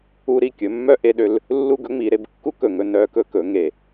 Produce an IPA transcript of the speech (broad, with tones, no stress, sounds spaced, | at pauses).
u˧ ɾ i˧˩ kʲ ɵ˩˧ mː œ˧ ʔ e˧ ɗ ø˧ l | lː u˥˧ ɡ ɵ˥ ŋ͡m i˩˧ ɾ e˧ b kː u˥ k ɵ˧˩ ŋ ɵ˥˧ n œ˧ k ɵ˧ k ɵ˩˧ ŋ e˧˩